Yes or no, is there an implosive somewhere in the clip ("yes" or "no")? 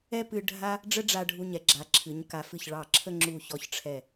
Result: no